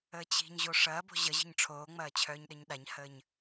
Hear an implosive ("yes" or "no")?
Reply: yes